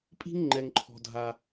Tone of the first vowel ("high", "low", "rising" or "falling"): high